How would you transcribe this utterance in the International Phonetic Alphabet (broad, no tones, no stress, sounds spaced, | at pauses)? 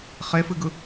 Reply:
χ e f ɨ ɡ ɯ